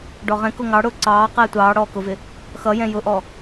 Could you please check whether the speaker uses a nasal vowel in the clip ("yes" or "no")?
yes